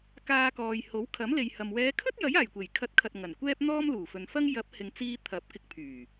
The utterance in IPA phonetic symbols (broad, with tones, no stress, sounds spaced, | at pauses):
k aː˧ k ɔː˨ j h o˨˥ w kʰ ɐ˨˥ m l e˨ j h ɐ˨ m w ɛː˨˧ kʰ ɵ˥ t̚ j ɐ˨˥ j aː˨˩ j kʷ e˨˩ j kʰ ɐ˨˥ t̚ kʰ ɐ˨ t̚ ŋ ɐ˨˩ n kʷ ɛː˥ p̚ n̪ ɔː˥ m l uː˨˩ f ɵ˨ n f ɐ˥ ŋ j ɐ˨˥ p̚ h ɪ˨ ŋ t͡s iː˧ t̪ʰ ɐ˨˥ p̚ k ɪ˧ k̚ pʰ yː˨˩